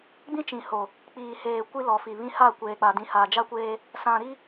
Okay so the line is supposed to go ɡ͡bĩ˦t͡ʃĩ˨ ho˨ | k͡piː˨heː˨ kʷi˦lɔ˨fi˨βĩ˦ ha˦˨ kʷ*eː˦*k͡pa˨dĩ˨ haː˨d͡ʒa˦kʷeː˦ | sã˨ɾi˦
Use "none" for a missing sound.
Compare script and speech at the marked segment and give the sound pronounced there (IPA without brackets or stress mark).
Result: eː˨